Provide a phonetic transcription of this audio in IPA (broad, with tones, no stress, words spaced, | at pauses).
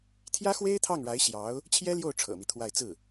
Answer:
t̪ʰjä˥xwe˥ɪ̯t̪ʰɑ˥˩ŋɻa˧˥ɪ̯ ɕjɑ˧˥ʊ̯ | t͡ɕʰjɛ˥ljo˥˩ʊ̯ ʈ͡ʂʰɤ̰˨˩mi˦t̪ʰwa˥˧ɪ̯ t͡sɹ̩˥˩